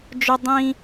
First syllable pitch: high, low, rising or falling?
high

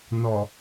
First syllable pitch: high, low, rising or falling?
low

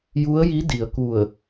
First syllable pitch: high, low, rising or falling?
rising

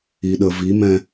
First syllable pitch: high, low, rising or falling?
low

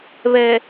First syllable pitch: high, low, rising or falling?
low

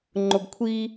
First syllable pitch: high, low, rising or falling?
low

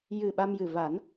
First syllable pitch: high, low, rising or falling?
low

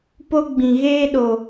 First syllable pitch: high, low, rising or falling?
high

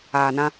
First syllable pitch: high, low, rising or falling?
low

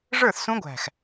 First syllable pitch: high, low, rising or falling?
falling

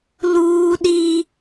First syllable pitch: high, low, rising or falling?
high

